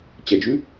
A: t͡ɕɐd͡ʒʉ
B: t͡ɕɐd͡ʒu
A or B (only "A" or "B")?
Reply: A